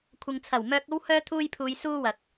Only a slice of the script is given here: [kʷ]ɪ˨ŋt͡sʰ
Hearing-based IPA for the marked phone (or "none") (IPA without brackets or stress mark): kʷʰ